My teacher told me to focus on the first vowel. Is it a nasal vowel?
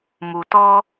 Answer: no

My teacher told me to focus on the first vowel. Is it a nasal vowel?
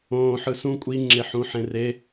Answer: yes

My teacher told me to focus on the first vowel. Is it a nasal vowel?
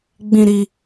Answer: yes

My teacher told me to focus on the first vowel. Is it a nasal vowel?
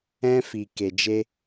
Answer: yes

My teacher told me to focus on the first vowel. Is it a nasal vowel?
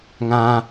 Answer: yes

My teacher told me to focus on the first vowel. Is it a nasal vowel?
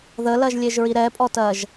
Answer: no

